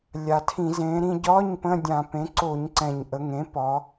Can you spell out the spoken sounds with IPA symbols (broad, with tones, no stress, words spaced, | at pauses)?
lʲa˨˩tʰĩ˧˩˧ zẽ˩˧ɾĩ˧ɟɒ˧˥˧ɲ pə̃˧˥˧dʲã˧˩˧ pẽ˩˥ǀo˧˩˧ɲǀɛ̃˨˩ɲʔə˩˧ ŋẽ˩˥pɒ˩˧